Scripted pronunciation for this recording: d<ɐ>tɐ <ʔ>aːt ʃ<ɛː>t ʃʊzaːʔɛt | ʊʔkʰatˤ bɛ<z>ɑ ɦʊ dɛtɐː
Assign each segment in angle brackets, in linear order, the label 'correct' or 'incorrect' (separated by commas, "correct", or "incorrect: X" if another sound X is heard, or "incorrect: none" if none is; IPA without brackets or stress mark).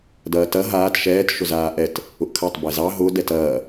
incorrect: ɐː, incorrect: ɦ, correct, correct